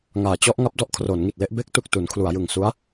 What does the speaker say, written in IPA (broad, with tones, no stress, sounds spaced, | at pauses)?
ŋ aː˩˦ t͡ɕ ɔ˦˥ ʔ ŋ a˦˥ p̚ d ɔ˦˥ ʔ kʰ r oː˩˦ n ŋ i˨˩ t̚ l e˥˩ ʔ b e˦˥ k̚ t u˨˩ k̚ t u˩˦ n kʰ l u˩˦ a̯ j ɯ˨˩ ŋ s u˦˥ a̯